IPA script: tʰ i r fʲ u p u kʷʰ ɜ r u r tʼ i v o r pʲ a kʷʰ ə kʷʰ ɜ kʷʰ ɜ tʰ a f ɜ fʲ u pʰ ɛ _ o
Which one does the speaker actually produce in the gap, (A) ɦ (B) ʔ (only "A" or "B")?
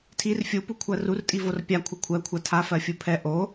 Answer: B